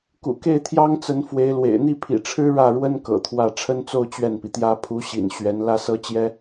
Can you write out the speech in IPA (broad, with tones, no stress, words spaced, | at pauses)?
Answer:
kṵ˨˩ke˥˩ɪ̯t̪ʰjɑ˥ŋt͡sə˧˥n fwe˧˥ɪ̯lwḛ˨˩ɪ̯ n̪i˥˩pʰḭ˨˩ʈ͡ʂʰɻ̩˥ ɻä˥˩ɻwə˥n kɤ̰˨˩t̪ʰwä˥˩ ʈ͡ʂʰə˥nt͡so˥˧ʊ̯ t͡ɕɥɛ˥˩npi˩t̪jä˥ pʰu˧˥ɕḭ˨˩n ɕɥɛ˧˥n lä˥sɤ˥t͡ɕjɛ˥